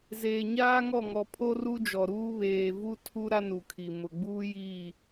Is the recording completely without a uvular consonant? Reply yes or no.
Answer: yes